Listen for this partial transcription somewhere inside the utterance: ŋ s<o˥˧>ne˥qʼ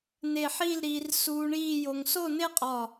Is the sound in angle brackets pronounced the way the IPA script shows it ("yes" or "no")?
yes